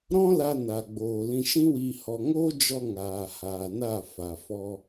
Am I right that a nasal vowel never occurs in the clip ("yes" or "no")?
no